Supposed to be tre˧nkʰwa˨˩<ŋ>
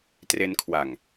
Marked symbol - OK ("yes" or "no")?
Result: yes